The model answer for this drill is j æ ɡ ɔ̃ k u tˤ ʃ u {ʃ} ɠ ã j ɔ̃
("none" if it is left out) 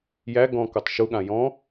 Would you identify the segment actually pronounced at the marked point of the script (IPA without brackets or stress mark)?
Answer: none